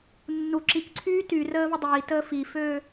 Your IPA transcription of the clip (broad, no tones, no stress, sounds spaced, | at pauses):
nː u ǁ i k ǀʰ yː t y r əː v ə dˤ iː t əː f i f øː